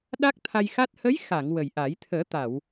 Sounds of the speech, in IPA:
ɗ a˦˥ k̚ t̪ʰ a˧ j x a˦˥ t̚ h ə˧˥ j x a˨˩˨ ŋ w ə˨˩ j ʔ a˨˩˦ j t̪ʰ əː˨˩˦ t̪ a˨˩˨ w

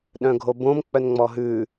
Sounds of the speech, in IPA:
ɗ œ̃ ɡʱ o b õ m k͡p œ n ŋ͡m ɔ ɦ ʉ

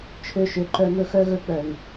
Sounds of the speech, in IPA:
t͡ʃʰ ø˧ ʃ ø˨ ǃ œ˧ m ɵ˧ x œ˦ ɣ ɵ˧ k͡p œ˨ ŋ

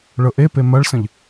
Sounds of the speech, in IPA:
ɭ ɤ ʔ e p e m ɐ ɭ s ə̃ ʎ

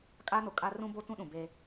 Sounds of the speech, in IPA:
kʼ a˦ n ʊ˨ kʼ a˦ r ũ˦ b o˦ t ũ˦ ɗ ũ˨ b e˦

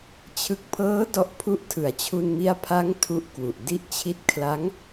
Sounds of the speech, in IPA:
t͡ɕʰ ɯ˨˩ k̚ pʰ ɤː˦˥ d ɔ˦˥ ʔ pʰ u˦˥ ʔ tʰ ɯ˩˦ a̯ t͡ɕʰ u˧ n m i˦˥ a̯ pʰ a˦˥ ŋ tʰ u˦˥ ʔ k w u˨˩ ʔ d i˥˩ ʔ t͡ɕʰ i˥˩ t̚ kʰ l a˦˥ ŋ

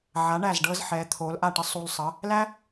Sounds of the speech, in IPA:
ʕ a˩˥ ɳ æ˥˩ z ɖ ɤː˥ z ħ ɛː˩˥ t̪ʰ oː˩˥ l ʔ a˥˩ ʈ ə˥ sˤ u˧ l sˤ ə˩˥ | l æ˥

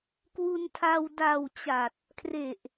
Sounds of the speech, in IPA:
k w u˧ n tʰ a˧ w d a˨˩ w t͡ɕ a˨˩ t̚ | kʰ r e˨˩ ʔ

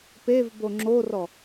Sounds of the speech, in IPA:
p e v b o ŋ͡ǁ o r ɔ

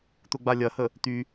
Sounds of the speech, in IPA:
t̪ ʊ ɡ͡b a lʲ ɐ h ə | t̪ y

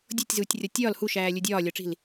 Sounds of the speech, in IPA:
dʲ o tʲ z uː tʲ rʲ ɒ tʲ ɒː l h u ʃ æː lʲ u dʲ ɒː lʲ ɒ ʈ͡ʂ i̤ l

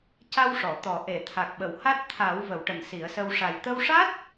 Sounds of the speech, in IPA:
c a˧ w ʂ ɔ˨˩˨ t̪ ɔ˨˩˦ ʔ e˨˩˨ t̪ʰ a˨˩ k̚ ɓ ə˨˩˨ w h a˦˥ t̚ t̪ʰ a˨˩˦ w v ə˨˩˦ w ʈ ə˨˩ ŋ s i˨˩˦ ə̯ s ə˧ w ʂ a˨˩ j t̪ ə˧ w ʂ a˦˥ t̚

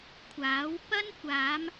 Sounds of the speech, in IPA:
kʷʰ aː˨˥ w p ɐ˥ n kʷ aː˨˧ m

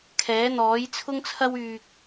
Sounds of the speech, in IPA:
kʰ ɛː˨˥ n̪ ɔː˨˥ j t͡sʰ ʊ˥ ŋ t͡sʰ ɐ˥ w yː˧ k̚

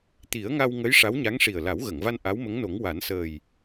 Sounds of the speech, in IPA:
t̪ i˨˩˦ ə̯ ŋ a˧ w ŋ ə˧˥ j ʂ a˧˥ w ɲ a˧˥ ŋ ʂ i˨˩ ə̯ l a˨˩˦ w ɣ ə˨˩˨ ŋ v a˧ n ʔ a˧˥ w m ə˧˥ ŋ n o˨˩˦ ŋ w a˨˩˦ n s əː˨˩ j

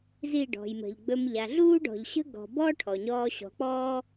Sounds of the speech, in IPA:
z i˦˨ ɖ ɔ̤˨ j m ə̤˨ ʎ ɡ͡b ɵ˧ m ʎ a˨ ɮ uː˦ ɖ ɔ̤˨ ʎ ɕ ə̤˦ ɡ ɔ̤˨ b ɔ˦ ʈʰ ɔ˨ ɲ ɔː˧ ɕ ɔ̤˨˦ k͡p ɔː˦

